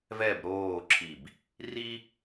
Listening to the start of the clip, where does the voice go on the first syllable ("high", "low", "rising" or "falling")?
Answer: falling